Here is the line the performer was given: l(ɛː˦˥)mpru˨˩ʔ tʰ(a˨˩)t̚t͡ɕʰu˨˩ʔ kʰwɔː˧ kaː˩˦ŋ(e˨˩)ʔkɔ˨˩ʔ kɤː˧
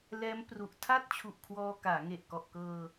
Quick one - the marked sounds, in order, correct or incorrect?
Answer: correct, incorrect: a˥˩, correct

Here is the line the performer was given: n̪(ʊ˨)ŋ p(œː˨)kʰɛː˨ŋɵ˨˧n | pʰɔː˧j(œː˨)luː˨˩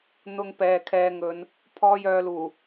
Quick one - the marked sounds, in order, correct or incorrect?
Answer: correct, incorrect: ɛː˨, correct

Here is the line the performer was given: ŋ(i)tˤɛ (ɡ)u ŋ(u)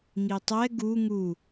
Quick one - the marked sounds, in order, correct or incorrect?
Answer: correct, correct, correct

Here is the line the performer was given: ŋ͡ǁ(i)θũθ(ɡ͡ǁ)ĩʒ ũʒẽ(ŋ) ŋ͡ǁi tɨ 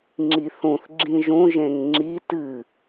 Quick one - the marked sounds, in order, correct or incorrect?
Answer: correct, correct, correct

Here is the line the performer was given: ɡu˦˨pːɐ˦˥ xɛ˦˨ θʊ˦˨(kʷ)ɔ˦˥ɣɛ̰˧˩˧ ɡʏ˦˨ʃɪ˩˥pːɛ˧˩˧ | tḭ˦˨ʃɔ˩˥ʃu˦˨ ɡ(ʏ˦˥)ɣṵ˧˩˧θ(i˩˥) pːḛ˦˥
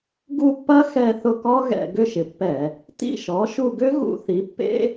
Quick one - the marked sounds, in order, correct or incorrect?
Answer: incorrect: k, correct, correct

